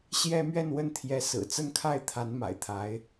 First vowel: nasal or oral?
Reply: oral